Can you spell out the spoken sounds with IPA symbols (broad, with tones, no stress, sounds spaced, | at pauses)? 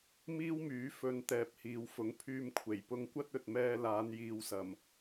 m iː˥ w m yː˨˥ f ɵ˧ n t̪ ɛː˨ p̚ h iː˨˧ w f ʊ˨˥ ŋ pʰ yː˧ m kʷʰ e˨˩ j p ʊ˧ ŋ kʷ ɐ˥ t̚ ɵ˨ t̚ m ɛː˧ l aː˨˧ n j iː˨ w s ɐ˨˩ m